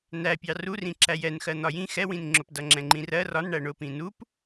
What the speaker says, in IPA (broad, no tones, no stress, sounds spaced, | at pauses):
n æ pʲ ɑ r u r ĩ ǁ æ j ɛ n x ɜ n̪ ɒ j ĩ x ɛ w ĩ n ŋ͡ǁ ʊ p d ʌ ŋ͡ǁ ɛ̃ ŋ͡ǃ ĩ r ɜ r ɒ n ɳ æ ɳ ʊ p ĩ n u p